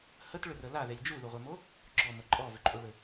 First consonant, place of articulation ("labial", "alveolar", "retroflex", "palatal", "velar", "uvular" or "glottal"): glottal